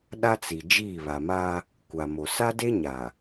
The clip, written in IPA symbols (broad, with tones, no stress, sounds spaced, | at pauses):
ɗ a˦ t͡s i˨ d͡ʒ iː˦˨ β a˨ m a˦ | kʷ a˨ m o˨ s a˦ d e˦ ɲ a˨